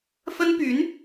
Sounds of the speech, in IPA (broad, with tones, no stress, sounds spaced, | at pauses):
f ə˥ n p y˧˥ n